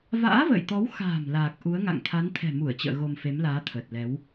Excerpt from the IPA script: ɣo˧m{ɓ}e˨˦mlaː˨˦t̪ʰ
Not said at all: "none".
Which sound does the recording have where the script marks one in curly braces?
f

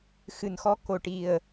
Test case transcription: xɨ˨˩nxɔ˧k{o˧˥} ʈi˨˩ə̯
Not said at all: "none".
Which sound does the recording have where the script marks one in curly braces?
o˨˩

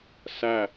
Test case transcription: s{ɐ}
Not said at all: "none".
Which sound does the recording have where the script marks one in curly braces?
æ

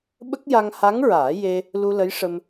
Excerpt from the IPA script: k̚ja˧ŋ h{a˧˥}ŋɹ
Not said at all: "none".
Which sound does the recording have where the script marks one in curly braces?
a˧˥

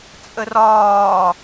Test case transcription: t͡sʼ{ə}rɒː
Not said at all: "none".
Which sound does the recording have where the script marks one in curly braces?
ə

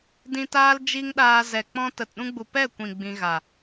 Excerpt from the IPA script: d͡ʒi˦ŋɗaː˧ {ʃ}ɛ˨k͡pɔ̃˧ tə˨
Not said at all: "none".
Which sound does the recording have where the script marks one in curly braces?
z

